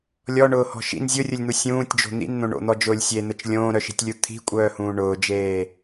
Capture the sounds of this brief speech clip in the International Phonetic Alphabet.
lʲ ɔ ɳ ʊː h ɔ̤ ʃ ḭ n zʲ ʊ rʲ ʊ lʲ n̪ u sʲ ũː tʲ d͡ʒ o̤ n̪ ḭ n n̪ õ ɳ o̰ n̪ ɔ d͡ʒ ʊː lʲ sʲ e n̪ ə t͡ʃ lʲ õː ɾ œ ʃ i̤ tʲ lʲ u t̪ʰ i̤ kʷʼ œː h ũː ɳ ʊː d͡ʒ eː

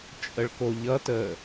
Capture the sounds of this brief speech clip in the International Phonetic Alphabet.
t͡ʃʼ ə ɭ k o ʎ ʌ t əː

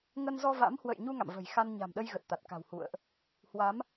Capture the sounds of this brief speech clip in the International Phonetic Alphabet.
ŋ ə˧ n z ɔ˧ v a̰˧˥ m h w ə̰˧˨ j ɲ u˧ ŋ a̰˧˨ m v ə̤˨˩ j x a˧ n ɲ a̤˨˩ m ɗ ə˧ j ɣ ə˨˩ t̚ t̪ a˨˩ t̚ k a̤˨˩ w h ṵ˧˨ ə̯ ʔ | h w a˨˦ m

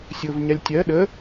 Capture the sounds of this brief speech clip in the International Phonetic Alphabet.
sʲ ʊ v ɲ a lʲ tʲ ɜ ɗ ə

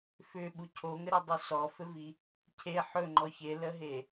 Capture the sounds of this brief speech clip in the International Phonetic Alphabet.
f ʏ ɓ u cʰ o ŋ ɘ ɾ ɘ dˤ u s ɔ f ɘ v i | cʰ e ħ ɵ ŋ͡ǃ ɔ ç e l ə ɦ e

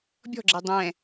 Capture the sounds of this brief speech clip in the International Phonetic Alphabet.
bʲ ɔ̤ ɡ͡ǁ e dˤ ɛ̃

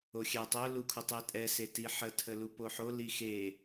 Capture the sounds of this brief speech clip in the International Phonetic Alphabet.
o xʲ ɛ tˤ ʊ l u kʰ u tˤ i tʼ ɛ s e t i ħ ə tʰ ə l u p o ħ o l i x e

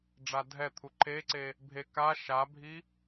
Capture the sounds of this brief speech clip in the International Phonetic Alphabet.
ɖ͡ʐ a dʱ ɛ t̪ʰ u ǃʰ e ǀ e | bʱ e k a ʃ a bʱ i

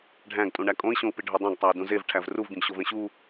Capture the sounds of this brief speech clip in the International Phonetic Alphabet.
ɖʱ æ̃ ɡ tʼ ũ ɳ æ kʼ õ i̯ ɕ õ u̯ p i ɖʱ o dˤ æ̃ ɡ tˤ æ i̯ d ũ z e v ʈʰ æ v r u v ɡ ĩ ɡ ɕ o v ẽ ɕ u

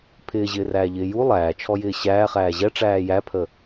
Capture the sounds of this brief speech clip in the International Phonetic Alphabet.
pʰ ɪː ʑ ɪː r æː ʎ ɪː j u lˠ æː t͡ʃʰ ɔ j ɪː ɕ æː χ æː ʑ ɛ ʈ͡ʂ æː j æ pʰ ə

